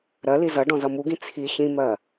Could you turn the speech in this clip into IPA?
ɾ ɜ l i z ʌ ɖ ɔ̃ z ʌ m u ɡ ĩ t͡sʰ i ç ĩ m ɜ

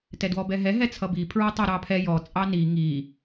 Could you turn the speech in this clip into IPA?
t ɛ d w ɔ b ɛ ɦ ɛ ɦ ɛ t͡sʰ ʌ b i pʰ ɹ ɔ tˤ ɑ ɾ ɑ pʰ ɛ j ɔ t͡sʼ ɑ n i ŋ i

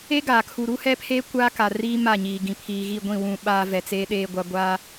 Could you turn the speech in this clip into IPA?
e˦ ɡ aː˨ kʰ u˨ ɾ u˦ h ɛ˦ pʰ eː˦ kʷ aː˦ k a˨ r iː˦ m a˦˨ ɲ iː˨ ɡ ĩ˨ pʰ iː˨ ɣ i˦˨ ɡʷ ĩ˦˨ w ũ˨ ɓ aː˨ v ɛ˨ t͡s eː˦ ɗ eː˦ ɡʷ a˦ ɡʷ aː˦

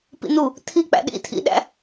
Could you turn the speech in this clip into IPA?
p ḭ n u | tʰ i k͡p æ̰ ɗ ḭ tʰ ḭ ɗ æ̰

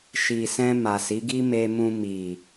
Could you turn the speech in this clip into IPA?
ʃ i˨ s ɛ̃˧ m a˨ s i˨˦ ɡ i˦ m e˧ m ũ˧ m i˨

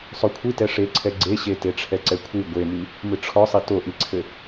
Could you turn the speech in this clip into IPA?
sˤ o kʷʰ i t ɛ ʂ e ǀʰ ɛ ɡ͡ǀ e ɕ e t e ʈ͡ʂʰ ɛ ǀ ɛ kʷʰ i ɡʷ e m i | m ɨ ʈ͡ʂʰ ɔ sˤ i t o ʔ i ǀʰ ɘ

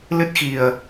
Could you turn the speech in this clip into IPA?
l ɨ˦˥ t̚ x i˨˩ ə̯

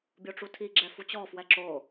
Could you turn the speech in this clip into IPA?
bʲ o ʈ͡ʂ u tʰ i ɡ͡ǁ ɛ f u t͡ɕ ɔ f w ɛ ǁ o

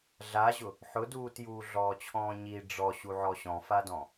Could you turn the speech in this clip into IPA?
ɮ a ʑ ʊ | ħ ʊ d uː t j uː ɮ ɔː t͡ɕʰ ɔ̃ː ɲ i ɖ͡ʐ ɔ ɕ u ʕ ɔ ɕ ɔ̃ f a d ɔ̃

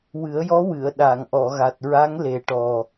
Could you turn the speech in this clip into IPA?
w ɨ˨˩˦ ə̯ j ɔ˧˥ w ɨ˨˩˨ ə̯ ɗ a˨˩˨ ŋ ʔ ɔ˨˩˨ ɣ a˨˩ t̚ ɹ a˧˥ ŋ l e˨˩ ʈ ɔ˨˩

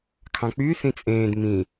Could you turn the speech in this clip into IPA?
kʰ ɑ̃ k͡p y θ ĩ t͡sʼ ẽː d m ĩ

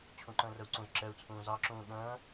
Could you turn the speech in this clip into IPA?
t͡ɕʰ ũ ǃ ə̃ː r ə u̯ ǀ ũ z ǁ ɛ u̯ t͡sʰ ũː z ɑ ǁ ũː ɠ ə̃ː

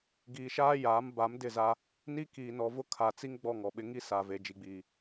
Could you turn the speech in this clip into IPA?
ɡ iː˨ ʃ aː˦ j aː˨˦ m b a˨˦ m d ɪ˦˨ z a˦ | n i˦ k iː˨ n ɔ˨ v ʊ˦ kʰ a˨ t͡s i˦ ŋ ɡ͡b ɔ˦˨ ŋ ɔ˨ ɓ ɪ˦ ŋ i˦ s a˨ v e˨ d͡ʒ i˨ ɡ͡b iː˨

